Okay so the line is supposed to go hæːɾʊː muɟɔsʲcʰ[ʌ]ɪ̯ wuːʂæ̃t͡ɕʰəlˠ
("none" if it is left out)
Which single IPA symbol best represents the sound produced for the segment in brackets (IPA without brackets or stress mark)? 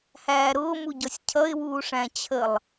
ʌ